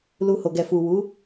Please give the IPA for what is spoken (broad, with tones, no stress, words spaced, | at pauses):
lu˧ho˨ ɡɛ˨fu˨wu˨˦